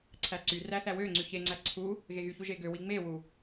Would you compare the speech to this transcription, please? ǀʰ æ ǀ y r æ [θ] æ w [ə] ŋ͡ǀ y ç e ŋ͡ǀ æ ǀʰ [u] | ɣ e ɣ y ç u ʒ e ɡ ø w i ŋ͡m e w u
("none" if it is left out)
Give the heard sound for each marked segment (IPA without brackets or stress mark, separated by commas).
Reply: θ, ø, u